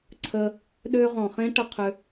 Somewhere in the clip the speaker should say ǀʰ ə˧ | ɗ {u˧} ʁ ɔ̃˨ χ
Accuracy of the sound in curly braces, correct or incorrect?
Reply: incorrect: ø˧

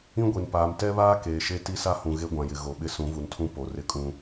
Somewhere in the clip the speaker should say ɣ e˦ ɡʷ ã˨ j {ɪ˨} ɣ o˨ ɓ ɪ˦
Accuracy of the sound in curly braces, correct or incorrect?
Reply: correct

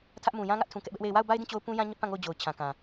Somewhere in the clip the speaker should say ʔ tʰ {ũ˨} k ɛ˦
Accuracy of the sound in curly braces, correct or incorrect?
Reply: correct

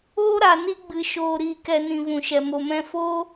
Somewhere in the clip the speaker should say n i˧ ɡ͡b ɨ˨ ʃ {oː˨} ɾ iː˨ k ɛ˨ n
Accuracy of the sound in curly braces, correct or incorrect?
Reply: correct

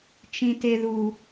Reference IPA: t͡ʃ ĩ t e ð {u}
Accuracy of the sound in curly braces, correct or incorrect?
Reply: correct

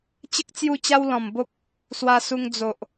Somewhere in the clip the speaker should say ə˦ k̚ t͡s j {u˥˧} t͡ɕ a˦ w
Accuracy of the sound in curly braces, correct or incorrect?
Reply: correct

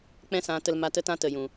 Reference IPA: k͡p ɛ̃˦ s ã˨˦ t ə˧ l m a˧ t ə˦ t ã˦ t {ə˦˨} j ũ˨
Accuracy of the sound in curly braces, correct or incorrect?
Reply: incorrect: ə˨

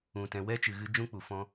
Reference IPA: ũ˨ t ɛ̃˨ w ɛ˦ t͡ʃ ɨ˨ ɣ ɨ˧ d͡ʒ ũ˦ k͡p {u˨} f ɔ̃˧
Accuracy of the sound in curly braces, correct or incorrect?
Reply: correct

